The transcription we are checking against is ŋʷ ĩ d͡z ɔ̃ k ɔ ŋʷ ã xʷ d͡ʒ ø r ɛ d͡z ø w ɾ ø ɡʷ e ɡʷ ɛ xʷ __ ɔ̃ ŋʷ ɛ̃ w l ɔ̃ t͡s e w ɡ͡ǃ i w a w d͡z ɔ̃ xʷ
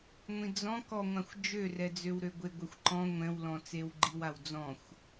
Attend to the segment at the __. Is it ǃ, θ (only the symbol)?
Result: ǃ